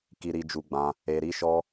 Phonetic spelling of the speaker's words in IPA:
k i˧ ɾ i˧ d͡ʒ u˧ ɡ͡b ã˧ | e˧ ɾ i˦ ʃ ɔ˦

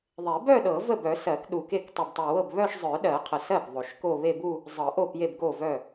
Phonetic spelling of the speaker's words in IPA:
ðˤ e˨˩˦ b œ˥˧ ɗ ɤ˨˩˦ v ə˥˩ b œ˨˩˦ s ɜ˨˩˦ k ɗ u˨˩ k e˥˩ k tˤ u˨˩ b tˤ ɵ˨˩ w ɤ˥˩ b β œ˥˧ ʃ zˤ œ˨˩˦ ɗ ɜ˨˩˦ qʰ ə˨˩ s ɜ˥˩ b ðˤ o˨˩ ʃ k o˥˧ β e˥˧ b u˥˧ | zˤ ɤ˨˩˦ ʔ o˥˩ p j e˥˩ b ɡ o˥˩ v œ˥˩

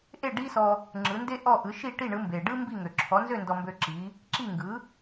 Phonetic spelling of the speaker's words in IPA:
ʔ e˥˩ ɖ i˥ s ɔ˧ | ŋ͡ǁ ɯ˩˥ n d e˥ ʔ ɔ˥˩ ʔ ɯ˩˥ ʃ i˥˩ ʈ i˥˩ ɳ ɯ˩˥ m b e˩ ɖ ɯ˥ m b i˥˩ ŋ ø˩ ǁʰ ɔ˩˥ n z ø˥˩ n d ɔ˧ m b ø˧ ǁ i˩˥ | ǁ i˥˩ ŋ ɡ ɯ˩˥

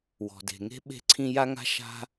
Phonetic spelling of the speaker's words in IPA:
w ɔ̤˩ d e̤˩ ŋ e̤˥ ɓ e̤˥ ǀʰ ĩ˥ j a˥ ŋ a̤˥ ʃ a̤˥

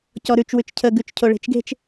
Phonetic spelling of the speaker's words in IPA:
c ɔ ɾ ʉ t͡ʃ w ʉ t͡ʃ cʰ ə ɡ ʉ t͡ʃ cʰ o ɭ e̤ t͡ʃ ɡ e̤ t͡ʃ

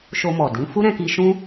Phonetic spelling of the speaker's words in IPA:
ʃ o˧ m ɔ˨ d ĩ˨˦ f u˦ ɾ ɛ̃˧ k i˧ ʃ ũ˦

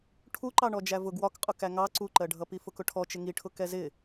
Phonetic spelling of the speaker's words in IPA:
ʈʰ u ǃ ɑ ɳ ɔ d͡ʒ æ v ʊ ɡ w ɒ k qʼ ʊ k æ ŋ ɑ ǀ u ǃ ɜ ɖʱ ʌ p i f ʊ k ʊ ʈʰ ɔ t͡ʃ ɪ ŋ i ʈʰ ʊ k ɛ z ɪ

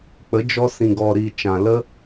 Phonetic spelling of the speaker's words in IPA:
k͡p ə˨˦ d͡ʒ ɔ˧ s ĩ˨ ɡ ɔ˨ ɾ i˨ t͡ʃ ã˨ l ə˦

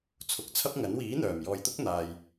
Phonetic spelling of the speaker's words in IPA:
t͡sʰ ʊ˨ k̚ t͡sʰ ɐ˥ p̚ ŋ ɐ˨˥ n w iː˨˥ n̪ œː˨˩ m j ɔː˨ j t̪ ʊ˥ k̚ n̪ aː˨ j

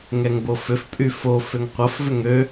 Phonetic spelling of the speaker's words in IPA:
ŋ ɛ ŋ b o f ʏ f pʼ y f o f ʏ ŋ qʷ ɐ f v ʏ ŋ ø

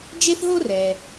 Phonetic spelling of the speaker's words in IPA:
d͡ʒ e˥ θ ɦ o˥ r ɛː˩

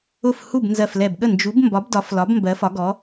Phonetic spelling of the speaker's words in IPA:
ʊ˥˩ f h u˥˩ b n z ɜ˧˩ f l ɛ˧˩ b ɠ ə˥˩ n d͡ʒ u˨˥ b m b ɒ˨˥ b d ɒ˨˥ f l ɒ˨˥ b m b ɜ˨˥ f ɒ˨˥ ɡ ɔ˨˥

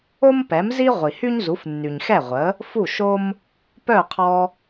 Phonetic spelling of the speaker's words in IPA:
o˥ m p ɛ˩˥ m z i˥ ʁʷ i˩ h y˥ ɲ z u˩˥ f nː y˩ ɲ x ɛ˥˩ ʁʷ ə˩˥ | f u˥˩ ʃ o˥ m | p œ˥˩ qʰ ɔ˧

